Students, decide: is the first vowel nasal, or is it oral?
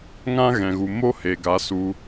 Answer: nasal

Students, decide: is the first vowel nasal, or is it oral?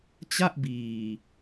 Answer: oral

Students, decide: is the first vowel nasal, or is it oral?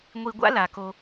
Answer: oral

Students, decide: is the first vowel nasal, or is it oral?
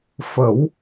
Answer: oral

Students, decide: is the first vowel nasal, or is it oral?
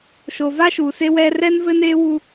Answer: oral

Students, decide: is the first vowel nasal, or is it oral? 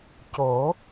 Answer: oral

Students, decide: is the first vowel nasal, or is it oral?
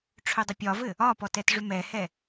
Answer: oral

